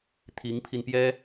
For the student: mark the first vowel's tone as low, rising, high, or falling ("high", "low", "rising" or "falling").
rising